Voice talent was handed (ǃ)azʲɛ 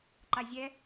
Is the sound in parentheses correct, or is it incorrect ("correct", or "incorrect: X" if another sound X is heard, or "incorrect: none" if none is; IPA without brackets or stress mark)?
correct